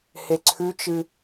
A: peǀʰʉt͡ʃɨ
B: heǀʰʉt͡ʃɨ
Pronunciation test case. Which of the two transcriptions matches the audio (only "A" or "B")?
B